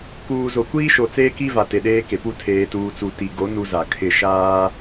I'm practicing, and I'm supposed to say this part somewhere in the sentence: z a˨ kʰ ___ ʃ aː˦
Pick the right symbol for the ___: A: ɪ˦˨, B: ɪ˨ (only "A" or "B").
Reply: A